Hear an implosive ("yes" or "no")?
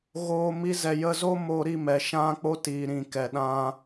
yes